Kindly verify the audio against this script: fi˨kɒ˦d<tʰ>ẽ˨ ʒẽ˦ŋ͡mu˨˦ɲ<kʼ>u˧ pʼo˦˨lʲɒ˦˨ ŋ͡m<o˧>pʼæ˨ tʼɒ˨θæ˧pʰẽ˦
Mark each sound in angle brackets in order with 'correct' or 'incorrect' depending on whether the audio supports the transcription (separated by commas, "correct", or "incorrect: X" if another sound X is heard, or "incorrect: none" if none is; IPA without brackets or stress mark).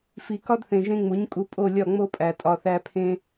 incorrect: θ, correct, incorrect: o˦